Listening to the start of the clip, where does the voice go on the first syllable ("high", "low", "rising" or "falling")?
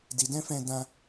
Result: low